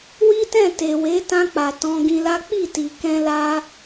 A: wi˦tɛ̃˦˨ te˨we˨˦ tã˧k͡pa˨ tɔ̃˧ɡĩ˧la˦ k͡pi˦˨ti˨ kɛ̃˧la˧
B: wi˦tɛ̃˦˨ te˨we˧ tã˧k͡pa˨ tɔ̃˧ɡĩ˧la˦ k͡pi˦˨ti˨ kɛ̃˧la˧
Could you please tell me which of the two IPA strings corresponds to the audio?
A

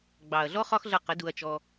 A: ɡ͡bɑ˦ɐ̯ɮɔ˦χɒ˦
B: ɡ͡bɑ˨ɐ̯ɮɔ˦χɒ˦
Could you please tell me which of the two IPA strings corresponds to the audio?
B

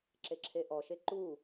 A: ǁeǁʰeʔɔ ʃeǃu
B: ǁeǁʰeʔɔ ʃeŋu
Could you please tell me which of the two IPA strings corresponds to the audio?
A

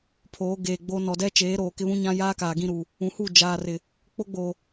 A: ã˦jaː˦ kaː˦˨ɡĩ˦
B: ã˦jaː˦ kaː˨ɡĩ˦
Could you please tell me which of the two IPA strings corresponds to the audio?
B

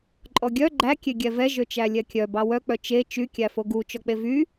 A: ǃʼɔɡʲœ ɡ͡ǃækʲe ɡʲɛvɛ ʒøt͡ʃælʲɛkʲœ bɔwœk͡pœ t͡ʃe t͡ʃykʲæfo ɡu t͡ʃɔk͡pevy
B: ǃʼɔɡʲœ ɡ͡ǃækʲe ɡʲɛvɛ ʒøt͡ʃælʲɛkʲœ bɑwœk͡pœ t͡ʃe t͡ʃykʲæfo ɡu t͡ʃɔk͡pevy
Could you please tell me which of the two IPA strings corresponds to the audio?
B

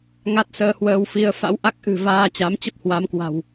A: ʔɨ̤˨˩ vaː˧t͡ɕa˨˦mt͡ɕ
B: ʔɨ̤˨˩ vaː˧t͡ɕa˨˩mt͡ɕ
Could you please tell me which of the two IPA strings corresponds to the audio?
A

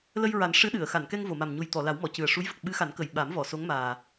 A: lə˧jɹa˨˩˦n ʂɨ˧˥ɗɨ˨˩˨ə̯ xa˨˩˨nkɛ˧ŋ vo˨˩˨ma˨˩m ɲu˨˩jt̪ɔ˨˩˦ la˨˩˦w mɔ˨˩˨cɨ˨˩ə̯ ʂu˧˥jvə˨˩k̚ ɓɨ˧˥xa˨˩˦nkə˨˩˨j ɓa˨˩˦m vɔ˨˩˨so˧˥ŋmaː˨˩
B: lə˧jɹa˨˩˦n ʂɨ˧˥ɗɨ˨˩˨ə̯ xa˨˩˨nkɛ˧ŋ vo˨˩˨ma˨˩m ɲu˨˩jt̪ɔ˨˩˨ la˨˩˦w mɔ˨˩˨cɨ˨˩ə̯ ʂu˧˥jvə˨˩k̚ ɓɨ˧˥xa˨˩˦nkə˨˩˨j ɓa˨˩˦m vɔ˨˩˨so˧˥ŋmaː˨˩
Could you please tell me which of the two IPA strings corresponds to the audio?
B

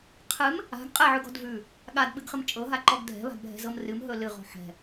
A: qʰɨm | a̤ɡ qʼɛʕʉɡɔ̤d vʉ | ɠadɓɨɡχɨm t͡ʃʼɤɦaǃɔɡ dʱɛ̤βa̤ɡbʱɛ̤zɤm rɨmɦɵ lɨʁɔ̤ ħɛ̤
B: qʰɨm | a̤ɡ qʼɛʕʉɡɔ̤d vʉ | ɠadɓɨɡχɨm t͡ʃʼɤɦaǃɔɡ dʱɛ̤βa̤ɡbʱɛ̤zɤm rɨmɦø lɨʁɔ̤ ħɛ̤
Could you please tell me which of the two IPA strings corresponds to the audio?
A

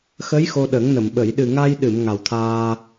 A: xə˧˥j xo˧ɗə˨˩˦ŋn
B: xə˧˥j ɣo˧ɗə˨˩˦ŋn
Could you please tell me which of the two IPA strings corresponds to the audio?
A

